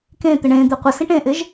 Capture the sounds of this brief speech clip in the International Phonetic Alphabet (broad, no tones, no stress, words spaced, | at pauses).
kẽt̪ɪ ɳẽ d̪eqʷəsĩʈ ẽʔɪʒ